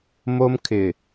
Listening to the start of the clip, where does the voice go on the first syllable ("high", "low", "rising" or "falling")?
high